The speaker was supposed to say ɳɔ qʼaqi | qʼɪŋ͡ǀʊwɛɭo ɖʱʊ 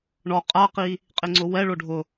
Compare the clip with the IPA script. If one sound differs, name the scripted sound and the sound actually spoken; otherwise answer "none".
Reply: none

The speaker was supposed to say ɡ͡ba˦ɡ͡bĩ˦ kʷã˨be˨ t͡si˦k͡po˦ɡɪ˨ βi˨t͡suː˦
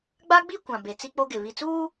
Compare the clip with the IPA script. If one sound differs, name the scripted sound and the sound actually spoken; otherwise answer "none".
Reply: ĩ˦ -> i˦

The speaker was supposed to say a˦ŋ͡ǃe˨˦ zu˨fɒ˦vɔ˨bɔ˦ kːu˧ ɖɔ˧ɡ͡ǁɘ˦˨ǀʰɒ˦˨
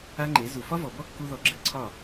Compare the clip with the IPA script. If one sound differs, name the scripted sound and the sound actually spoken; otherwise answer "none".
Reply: ɖ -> ð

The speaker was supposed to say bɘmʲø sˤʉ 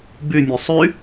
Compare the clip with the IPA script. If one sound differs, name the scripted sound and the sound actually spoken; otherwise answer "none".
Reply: ɘ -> ʉ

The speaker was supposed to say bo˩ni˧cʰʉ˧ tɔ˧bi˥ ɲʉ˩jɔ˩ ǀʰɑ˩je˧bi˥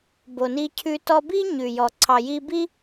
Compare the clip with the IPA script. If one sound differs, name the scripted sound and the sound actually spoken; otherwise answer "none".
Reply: e˧ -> i˧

